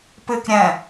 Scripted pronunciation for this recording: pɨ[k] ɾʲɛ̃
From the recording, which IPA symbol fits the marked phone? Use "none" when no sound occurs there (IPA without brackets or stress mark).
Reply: k